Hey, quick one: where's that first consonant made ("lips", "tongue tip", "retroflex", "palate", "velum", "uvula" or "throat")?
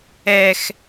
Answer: velum